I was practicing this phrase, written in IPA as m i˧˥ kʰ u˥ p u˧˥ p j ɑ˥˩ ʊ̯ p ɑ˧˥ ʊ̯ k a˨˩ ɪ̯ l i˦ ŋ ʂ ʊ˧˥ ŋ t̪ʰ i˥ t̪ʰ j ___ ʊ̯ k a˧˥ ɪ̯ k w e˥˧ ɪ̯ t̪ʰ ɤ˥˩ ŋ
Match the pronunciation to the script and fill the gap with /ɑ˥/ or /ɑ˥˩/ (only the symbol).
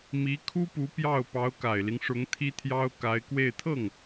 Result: ɑ˥